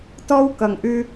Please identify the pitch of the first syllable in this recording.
high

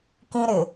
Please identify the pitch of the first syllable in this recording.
high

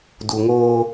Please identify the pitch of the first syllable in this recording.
low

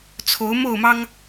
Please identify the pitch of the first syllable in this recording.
rising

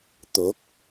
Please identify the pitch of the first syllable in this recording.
rising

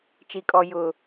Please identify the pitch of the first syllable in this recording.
low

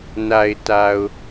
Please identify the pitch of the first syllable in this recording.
low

